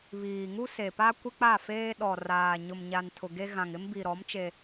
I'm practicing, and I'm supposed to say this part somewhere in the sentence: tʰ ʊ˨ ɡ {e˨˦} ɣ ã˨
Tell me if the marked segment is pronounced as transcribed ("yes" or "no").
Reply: no